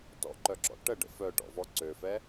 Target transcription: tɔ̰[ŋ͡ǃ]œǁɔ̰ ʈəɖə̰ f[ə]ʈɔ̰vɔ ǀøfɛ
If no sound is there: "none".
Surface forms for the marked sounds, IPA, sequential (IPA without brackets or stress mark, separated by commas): ǃ, œ